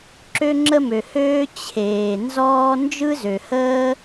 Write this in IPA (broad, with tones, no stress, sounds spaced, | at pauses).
ǁ ø˥ ŋ͡ǁ ə˥ m ø˩ h øː˥ t͡ɕʰ eː˩ n z ɔː˥ n d͡ʒ ɯ˥ z ø˩ h əː˥